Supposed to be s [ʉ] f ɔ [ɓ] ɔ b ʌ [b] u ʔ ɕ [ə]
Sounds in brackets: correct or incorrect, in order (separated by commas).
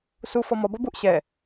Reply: incorrect, incorrect, correct, incorrect